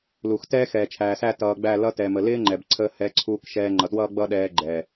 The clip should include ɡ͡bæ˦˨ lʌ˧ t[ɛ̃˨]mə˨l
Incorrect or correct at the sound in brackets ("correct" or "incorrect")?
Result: incorrect